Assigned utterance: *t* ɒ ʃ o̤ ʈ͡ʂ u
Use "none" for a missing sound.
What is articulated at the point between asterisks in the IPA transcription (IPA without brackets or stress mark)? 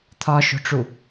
t̪ʰ